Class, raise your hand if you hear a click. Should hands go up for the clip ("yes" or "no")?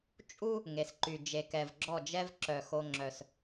yes